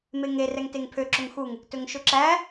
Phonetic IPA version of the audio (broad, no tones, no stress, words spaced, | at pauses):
meŋe rɛŋteŋpʰø ǁɵŋxuŋ | tɵŋʃɵǁæ